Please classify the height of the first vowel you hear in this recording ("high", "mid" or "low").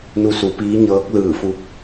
high